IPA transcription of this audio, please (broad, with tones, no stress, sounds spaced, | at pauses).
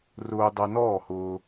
r ʊː˧ dˤ ɐ˧ n ɔː˦˨ h ʊː˧